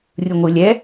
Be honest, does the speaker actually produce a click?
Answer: no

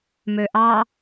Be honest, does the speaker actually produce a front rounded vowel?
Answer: yes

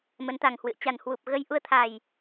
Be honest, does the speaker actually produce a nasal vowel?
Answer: no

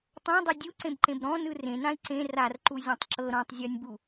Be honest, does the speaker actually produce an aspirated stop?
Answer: no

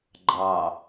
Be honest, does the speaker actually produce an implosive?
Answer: no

